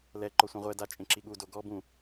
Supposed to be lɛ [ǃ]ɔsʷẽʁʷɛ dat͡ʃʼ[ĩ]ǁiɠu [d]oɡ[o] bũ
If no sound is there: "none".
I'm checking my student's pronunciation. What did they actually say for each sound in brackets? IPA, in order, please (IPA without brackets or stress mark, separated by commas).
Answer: ǃ, ẽ, d, ɔ